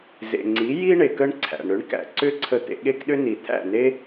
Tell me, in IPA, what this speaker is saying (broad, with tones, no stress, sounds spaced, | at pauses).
z ḛ˩ ŋ͡ǀ i˩˥ j i˥ ɳ e˩ k ə˥ ɳ ǀʰ æ̰˩ ɳ ɾ ʏ˩˥ ɳ k æ̰˩ ǀ ʏ˥ ǀʰ ə˧ t̪ ḛ˧ ɠ e˥ k ɗ ʏ˥ n i˩ t̪ʰ æ̰˥˩ n e˥